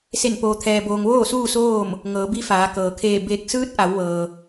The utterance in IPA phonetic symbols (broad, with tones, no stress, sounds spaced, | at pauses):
s e˧˩ n p oː˩ t̪ʰ ɛː˩ b oː˩ ŋ ʋ oː˥˨ s uː˥˨ s oː˥˨ m | ŋ ɤː˩˧ b i˧˥ f aː˩˧ k ɤː˩ kʰ eː˧˩ b eː˧˩ k̚ s ɯː˧˥ t̚ ʔ a˩˧ w ʋ ɤː˩